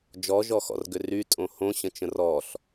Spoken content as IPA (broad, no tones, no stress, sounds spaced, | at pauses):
d͡ʒ ɔ ʒ ɔ x ɔ̰ r ɡ ʏ r y tʼ õ h õ ɕ ə̃ t͡ʃ ə̃ r ɔ ɬ